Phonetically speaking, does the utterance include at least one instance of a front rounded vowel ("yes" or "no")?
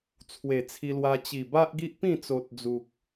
no